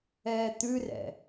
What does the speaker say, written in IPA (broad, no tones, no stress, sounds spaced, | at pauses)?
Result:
ɛː t̪ ʉ r ɛ̰